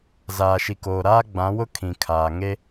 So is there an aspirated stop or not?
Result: yes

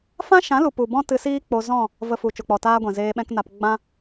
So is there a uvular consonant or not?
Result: no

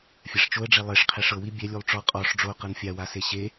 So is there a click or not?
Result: no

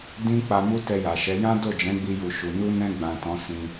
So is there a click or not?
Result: no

